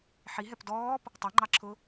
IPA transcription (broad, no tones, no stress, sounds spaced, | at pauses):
ħ i ɦ ɛ p d ɔː p | tˤ ɛ ŋ͡ǃ ɑ ǁʰ ʊ